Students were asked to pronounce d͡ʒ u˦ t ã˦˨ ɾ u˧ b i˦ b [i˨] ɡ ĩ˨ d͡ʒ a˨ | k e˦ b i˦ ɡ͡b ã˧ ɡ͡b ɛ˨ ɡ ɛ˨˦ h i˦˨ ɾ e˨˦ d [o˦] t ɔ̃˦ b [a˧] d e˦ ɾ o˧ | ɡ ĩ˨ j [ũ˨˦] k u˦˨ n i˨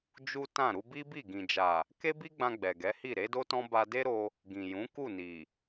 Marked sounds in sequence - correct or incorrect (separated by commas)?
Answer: incorrect, correct, correct, correct